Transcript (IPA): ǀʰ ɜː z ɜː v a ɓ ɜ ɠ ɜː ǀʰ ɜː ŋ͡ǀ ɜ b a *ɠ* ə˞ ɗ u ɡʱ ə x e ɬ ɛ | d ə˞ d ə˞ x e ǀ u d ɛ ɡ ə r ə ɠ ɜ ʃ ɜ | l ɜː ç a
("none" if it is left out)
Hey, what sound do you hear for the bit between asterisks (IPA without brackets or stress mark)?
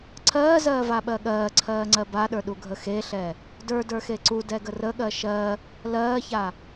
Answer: ɗ